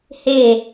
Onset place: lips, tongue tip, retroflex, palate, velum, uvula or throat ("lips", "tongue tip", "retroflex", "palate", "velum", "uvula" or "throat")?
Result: throat